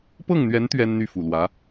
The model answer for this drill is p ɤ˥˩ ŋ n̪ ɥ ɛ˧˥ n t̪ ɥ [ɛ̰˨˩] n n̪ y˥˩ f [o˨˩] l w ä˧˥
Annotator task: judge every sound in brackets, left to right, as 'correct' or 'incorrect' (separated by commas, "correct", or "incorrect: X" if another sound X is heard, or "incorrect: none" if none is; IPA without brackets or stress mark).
incorrect: ɛ˥, incorrect: u˨˩